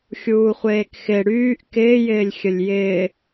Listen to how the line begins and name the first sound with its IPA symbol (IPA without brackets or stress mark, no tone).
xʲ